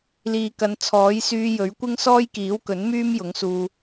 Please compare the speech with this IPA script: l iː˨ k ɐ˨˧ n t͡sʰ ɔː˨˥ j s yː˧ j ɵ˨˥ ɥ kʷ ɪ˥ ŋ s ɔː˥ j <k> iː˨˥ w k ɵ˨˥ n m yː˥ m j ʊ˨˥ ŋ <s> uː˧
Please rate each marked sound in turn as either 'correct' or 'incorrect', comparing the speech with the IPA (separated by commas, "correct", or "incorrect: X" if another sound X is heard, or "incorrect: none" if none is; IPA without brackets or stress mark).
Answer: correct, correct